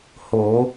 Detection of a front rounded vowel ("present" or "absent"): absent